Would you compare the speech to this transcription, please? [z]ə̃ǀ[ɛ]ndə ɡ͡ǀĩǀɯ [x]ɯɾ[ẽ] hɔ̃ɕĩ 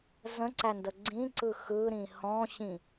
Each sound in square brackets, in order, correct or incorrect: correct, incorrect: æ, correct, incorrect: ĩ

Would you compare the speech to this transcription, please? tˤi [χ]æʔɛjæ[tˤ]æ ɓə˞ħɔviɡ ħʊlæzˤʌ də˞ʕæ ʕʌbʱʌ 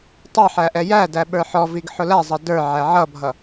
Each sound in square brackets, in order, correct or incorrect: incorrect: ħ, incorrect: d

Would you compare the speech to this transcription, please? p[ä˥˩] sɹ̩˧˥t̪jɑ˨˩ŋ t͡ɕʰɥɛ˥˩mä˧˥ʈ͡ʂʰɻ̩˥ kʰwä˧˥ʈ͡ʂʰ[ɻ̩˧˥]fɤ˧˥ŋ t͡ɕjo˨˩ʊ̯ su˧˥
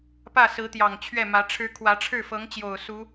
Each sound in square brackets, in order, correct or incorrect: correct, incorrect: ɻ̩˥˩

